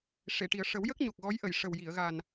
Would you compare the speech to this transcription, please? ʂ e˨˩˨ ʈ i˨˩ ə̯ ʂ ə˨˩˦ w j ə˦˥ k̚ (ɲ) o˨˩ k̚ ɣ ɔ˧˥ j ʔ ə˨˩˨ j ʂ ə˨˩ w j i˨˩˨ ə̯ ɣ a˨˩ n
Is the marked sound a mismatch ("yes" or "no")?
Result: no